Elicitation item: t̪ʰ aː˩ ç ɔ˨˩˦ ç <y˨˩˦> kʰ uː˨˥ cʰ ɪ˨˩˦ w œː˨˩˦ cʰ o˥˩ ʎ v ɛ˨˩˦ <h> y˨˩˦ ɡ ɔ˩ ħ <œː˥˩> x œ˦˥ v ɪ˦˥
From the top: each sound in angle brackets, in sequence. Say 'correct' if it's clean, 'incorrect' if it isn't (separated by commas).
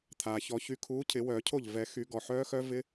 incorrect, incorrect, incorrect